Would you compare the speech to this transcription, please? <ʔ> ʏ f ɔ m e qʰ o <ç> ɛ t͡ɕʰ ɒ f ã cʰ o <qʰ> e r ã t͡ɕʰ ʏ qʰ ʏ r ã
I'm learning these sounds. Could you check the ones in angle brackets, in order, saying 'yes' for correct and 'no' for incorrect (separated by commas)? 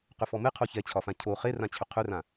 no, yes, no